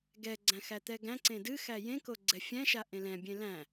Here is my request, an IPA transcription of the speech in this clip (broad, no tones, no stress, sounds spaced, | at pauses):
ɡ ɛ ɡ͡ǀ æ̃ x æ t̪ ɛ ɡ æ̃ ǀ ẽ d ɨ x æ j ẽ k o ɡ͡ǀ ɛ fʲ æ̃ ʃ a ʔ ẽ l ɛ̃ bʲ ẽ l æ̃